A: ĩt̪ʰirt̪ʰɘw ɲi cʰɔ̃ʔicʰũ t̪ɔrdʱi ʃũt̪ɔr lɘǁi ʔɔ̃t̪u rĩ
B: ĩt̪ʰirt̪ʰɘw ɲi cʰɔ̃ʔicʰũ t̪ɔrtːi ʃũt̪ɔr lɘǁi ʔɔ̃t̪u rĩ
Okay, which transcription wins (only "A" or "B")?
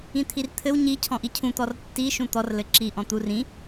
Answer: B